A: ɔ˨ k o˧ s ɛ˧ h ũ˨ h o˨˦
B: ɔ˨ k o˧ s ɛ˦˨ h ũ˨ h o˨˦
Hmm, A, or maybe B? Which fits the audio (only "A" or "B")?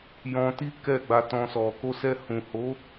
A